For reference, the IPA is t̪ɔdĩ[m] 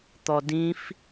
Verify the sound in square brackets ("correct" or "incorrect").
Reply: incorrect